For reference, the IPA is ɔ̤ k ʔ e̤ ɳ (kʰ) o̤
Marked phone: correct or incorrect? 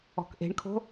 correct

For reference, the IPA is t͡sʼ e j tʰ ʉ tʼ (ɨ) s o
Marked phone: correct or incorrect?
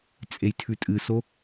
correct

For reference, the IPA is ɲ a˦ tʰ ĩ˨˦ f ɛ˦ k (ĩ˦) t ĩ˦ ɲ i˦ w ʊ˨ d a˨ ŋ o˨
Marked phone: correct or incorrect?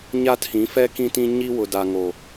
correct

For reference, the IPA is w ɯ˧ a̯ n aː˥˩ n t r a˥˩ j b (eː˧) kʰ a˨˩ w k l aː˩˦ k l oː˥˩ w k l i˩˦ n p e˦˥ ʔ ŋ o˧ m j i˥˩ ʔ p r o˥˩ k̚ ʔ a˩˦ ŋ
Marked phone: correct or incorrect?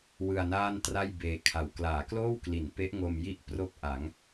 correct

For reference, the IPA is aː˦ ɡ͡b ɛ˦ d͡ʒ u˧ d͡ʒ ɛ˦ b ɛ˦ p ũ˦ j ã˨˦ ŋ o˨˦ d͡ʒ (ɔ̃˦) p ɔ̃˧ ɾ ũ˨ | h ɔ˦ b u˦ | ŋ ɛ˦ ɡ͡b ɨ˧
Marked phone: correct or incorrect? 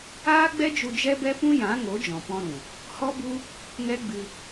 incorrect: ɔ̃˨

